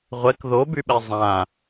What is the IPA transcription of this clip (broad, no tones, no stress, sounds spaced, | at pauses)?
ʁʷ ɛ k ð o b y ɓ ɛ zˤ ã